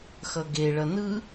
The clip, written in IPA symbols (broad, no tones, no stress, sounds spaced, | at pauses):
x ʌ ɡ e ɭ ʌ n ɯ